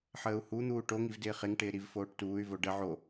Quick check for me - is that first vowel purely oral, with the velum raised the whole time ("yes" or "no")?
yes